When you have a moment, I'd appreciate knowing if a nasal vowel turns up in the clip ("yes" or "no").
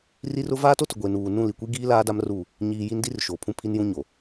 yes